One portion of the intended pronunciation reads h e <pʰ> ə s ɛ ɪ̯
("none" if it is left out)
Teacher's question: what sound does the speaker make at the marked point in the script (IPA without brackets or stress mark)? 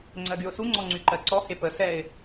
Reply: p